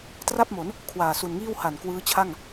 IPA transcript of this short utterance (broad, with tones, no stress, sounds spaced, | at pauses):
t r a˥˩ p̚ m o˩˦ n | kʰ w aː˨˩ s u˨˩ n ŋ iː˥˩ w h a˨˩ n k w ɯː˦˥ t͡ɕʰ a˥˩ ŋ